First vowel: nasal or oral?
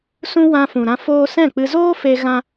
nasal